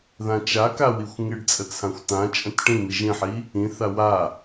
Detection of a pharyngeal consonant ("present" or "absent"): present